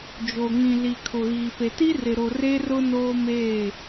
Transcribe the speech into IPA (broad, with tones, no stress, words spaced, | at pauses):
d͡ʒo˨ŋĩ˨li˨ kʰʊ˨ɣiː˨pe˨ti˦ rɪ˨ɾo˨ re˦rʊ˦ noː˦meː˦˨